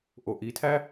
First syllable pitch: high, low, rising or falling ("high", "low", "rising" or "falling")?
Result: low